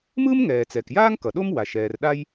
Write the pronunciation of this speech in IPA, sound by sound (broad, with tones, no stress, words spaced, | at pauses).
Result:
mɯː˥mŋɛː˩ t͡sɛ˩kjaː˥ŋ kʌ˩ɗo˥m wa˩ʃ ɛː˩r ɗa˥j